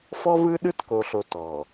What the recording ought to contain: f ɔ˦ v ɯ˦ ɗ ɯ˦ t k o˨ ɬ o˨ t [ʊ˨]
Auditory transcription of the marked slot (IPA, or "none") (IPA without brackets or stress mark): ɔ˨